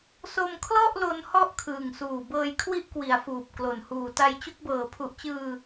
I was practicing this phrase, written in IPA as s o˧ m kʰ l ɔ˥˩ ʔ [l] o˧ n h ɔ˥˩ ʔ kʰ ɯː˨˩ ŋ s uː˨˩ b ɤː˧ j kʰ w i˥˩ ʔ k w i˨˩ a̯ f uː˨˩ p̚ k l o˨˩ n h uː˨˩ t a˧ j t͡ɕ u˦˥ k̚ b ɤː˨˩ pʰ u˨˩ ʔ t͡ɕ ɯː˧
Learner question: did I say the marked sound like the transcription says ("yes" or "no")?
yes